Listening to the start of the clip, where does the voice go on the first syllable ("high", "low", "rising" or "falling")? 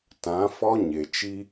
rising